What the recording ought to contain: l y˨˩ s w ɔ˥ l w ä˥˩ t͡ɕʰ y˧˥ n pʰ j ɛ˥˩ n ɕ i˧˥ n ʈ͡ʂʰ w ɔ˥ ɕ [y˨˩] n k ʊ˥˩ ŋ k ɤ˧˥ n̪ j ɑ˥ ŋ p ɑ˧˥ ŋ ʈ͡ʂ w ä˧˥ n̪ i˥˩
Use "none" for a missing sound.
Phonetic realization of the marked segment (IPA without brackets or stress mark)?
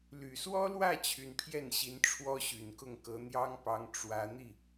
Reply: y˨˩